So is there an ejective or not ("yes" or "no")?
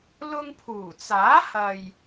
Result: no